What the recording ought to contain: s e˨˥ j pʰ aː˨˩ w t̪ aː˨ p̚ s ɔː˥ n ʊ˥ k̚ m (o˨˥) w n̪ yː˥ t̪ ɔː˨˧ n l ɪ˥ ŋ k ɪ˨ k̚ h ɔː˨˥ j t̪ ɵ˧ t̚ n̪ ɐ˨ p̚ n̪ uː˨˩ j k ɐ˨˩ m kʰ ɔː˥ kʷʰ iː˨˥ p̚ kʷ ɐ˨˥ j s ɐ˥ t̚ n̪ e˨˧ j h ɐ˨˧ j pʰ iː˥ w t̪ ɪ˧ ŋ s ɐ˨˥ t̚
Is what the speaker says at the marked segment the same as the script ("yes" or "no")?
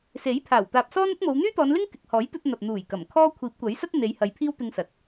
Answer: no